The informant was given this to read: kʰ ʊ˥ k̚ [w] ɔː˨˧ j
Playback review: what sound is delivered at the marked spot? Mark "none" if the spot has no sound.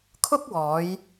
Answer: w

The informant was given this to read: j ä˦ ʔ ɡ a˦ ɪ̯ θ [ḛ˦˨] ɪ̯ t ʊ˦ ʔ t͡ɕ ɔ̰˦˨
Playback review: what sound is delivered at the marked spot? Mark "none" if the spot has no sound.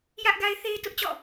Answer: e˦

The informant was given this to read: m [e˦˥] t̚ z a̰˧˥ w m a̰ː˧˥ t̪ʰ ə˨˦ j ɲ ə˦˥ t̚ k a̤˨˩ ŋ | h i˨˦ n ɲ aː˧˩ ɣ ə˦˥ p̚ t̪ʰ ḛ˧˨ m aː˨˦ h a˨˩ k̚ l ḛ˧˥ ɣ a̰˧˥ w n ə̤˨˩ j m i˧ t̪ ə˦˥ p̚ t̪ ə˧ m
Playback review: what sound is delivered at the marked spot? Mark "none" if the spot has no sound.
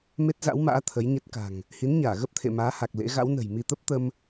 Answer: e˦˥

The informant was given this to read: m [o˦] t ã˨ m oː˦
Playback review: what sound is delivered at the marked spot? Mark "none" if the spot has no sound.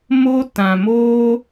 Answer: o˦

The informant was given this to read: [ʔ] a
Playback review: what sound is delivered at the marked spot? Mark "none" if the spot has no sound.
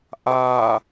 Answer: ʔ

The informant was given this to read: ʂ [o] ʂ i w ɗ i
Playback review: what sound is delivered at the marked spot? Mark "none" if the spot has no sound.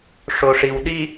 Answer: o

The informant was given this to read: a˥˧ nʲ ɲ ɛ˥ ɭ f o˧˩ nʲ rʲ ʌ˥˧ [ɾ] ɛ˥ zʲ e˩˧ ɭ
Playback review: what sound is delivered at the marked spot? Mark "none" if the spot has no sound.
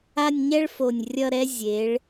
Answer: ɾ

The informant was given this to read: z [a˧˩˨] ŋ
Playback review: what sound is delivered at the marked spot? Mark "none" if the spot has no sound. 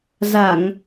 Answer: a˧˩˨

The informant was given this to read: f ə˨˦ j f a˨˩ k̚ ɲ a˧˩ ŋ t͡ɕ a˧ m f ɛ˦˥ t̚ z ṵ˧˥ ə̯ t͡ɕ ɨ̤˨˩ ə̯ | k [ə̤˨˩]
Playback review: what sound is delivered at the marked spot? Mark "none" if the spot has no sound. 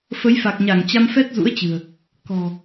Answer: ɔ̤˨˩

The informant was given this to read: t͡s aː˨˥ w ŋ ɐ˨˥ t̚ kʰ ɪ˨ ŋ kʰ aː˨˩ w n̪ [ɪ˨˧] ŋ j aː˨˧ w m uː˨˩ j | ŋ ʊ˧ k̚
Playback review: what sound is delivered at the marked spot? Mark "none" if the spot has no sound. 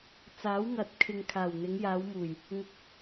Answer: ɪ˨˧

